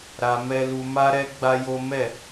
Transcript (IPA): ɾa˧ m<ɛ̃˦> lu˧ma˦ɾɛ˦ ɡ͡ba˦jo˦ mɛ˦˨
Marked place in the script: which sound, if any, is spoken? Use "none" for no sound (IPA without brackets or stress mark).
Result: ɛ˦